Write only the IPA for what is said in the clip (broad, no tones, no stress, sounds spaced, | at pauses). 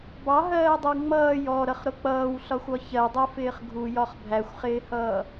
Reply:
b ɑ ɦ ɜː dˤ ə w ŋ͡m ʌː j ɔ ɾ ʌ χ ɾ ʊ k͡p ʌː w ɬ ɒ xʷ ɒ ç ɜ dˤ ɛ f ɪː χ ɡʱ u j ɒ χ bʱ æ xʷ χ ɪː h ʌː